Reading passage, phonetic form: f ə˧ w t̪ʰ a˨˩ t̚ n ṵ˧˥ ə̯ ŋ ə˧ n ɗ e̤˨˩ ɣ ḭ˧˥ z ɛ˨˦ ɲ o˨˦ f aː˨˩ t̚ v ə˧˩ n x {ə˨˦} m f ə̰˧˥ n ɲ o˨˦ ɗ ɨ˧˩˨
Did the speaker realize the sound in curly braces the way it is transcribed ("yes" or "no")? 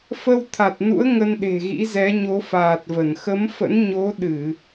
yes